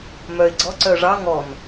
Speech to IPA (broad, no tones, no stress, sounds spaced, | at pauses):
m œ ɪ̯ ɡ͡ǀ ɔ ǀ œ ʐ ɑ ŋ ɔ n